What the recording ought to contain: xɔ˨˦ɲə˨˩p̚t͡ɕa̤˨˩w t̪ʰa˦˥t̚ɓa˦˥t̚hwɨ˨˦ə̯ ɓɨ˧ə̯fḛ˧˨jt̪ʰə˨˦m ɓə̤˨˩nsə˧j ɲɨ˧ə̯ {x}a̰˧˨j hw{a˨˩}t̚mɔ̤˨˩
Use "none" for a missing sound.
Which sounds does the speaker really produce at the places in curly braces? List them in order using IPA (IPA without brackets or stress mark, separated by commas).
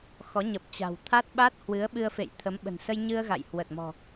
ɣ, ə˨˩